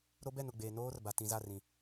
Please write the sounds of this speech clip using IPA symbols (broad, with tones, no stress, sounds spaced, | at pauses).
ɾ o˦ b ɛ˦˨ n ʊ˦˨ ɡ͡b eː˨ n oː˦ r b a˨ t ĩ˨ z a˦˨ r ĩ˨